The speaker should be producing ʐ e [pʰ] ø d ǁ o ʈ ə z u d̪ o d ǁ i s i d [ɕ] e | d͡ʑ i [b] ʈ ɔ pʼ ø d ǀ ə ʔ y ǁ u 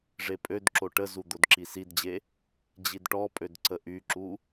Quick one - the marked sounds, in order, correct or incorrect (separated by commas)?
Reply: incorrect, incorrect, incorrect